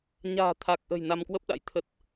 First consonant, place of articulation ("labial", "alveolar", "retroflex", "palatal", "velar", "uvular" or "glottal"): palatal